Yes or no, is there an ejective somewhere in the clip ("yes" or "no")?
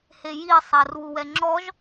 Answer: no